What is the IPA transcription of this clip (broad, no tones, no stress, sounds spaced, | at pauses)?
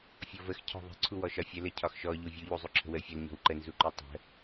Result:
fʲ ɔ v ə x cʰ ɔ̤ ðˤ ə̤ ǀʰ u w ɔ ʃ ɒ fʲ ə l ə cʰ ɒ x ʃ ɔ ʎ u vʲ u ʎ u zˤ u ǁʰ ə̤ w ə fʲ ɔ l ɲ ɔ̤ w ǃ ə n z u ǃ u tˤ ə̤